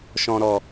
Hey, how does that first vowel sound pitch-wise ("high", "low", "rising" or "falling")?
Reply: low